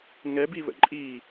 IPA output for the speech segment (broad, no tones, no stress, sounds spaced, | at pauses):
ŋ ɛ b i β ə̰ ǃʼ i